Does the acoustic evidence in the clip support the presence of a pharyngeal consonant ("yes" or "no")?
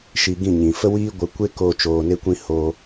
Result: no